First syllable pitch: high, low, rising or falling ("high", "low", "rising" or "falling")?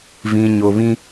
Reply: low